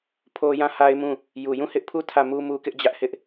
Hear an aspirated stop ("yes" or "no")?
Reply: yes